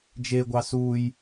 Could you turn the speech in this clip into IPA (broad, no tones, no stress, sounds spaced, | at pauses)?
d͡ʒ e ɡʷ ɑ s u j